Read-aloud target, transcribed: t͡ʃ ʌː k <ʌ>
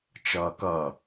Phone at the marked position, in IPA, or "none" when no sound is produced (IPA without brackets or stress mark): ʌ